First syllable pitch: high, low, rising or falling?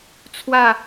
falling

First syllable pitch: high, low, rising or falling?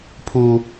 high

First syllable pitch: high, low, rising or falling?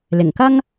low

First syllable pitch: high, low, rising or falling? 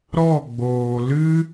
falling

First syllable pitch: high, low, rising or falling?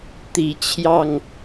low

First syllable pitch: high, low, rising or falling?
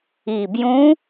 low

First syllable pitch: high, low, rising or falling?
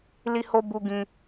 high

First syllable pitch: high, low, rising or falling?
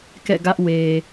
falling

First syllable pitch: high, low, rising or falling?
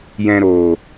low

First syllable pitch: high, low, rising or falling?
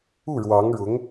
falling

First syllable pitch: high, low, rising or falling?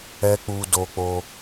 high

